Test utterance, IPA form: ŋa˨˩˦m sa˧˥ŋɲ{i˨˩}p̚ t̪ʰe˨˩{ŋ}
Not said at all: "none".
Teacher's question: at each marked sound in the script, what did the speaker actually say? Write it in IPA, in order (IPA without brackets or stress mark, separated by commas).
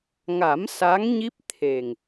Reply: i˦˥, ŋ